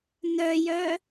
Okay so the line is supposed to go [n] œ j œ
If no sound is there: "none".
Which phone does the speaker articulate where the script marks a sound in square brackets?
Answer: n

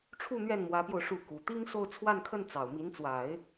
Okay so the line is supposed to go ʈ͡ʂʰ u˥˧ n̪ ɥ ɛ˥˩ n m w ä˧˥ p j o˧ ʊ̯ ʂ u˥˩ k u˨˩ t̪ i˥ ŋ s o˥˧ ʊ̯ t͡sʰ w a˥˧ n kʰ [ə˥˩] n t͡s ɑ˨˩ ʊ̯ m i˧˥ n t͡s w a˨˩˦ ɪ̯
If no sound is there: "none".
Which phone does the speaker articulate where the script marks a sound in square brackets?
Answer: ə˥˩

